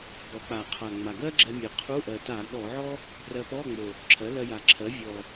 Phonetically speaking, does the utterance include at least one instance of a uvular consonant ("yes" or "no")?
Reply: yes